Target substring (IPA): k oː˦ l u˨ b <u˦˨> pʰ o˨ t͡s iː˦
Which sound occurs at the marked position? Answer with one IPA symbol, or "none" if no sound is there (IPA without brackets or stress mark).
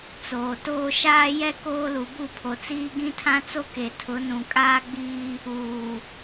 u˦˨